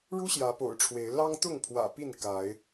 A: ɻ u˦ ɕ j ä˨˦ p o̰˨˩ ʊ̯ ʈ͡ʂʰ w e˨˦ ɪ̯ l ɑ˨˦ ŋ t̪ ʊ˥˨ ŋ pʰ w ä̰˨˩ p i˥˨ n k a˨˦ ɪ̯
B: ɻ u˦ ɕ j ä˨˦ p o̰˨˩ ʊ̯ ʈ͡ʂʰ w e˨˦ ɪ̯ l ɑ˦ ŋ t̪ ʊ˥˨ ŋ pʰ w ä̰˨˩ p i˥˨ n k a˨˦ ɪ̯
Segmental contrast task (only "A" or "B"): B